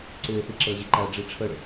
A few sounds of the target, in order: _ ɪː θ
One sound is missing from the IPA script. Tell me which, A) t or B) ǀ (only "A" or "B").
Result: B